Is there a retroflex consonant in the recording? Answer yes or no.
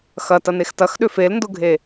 no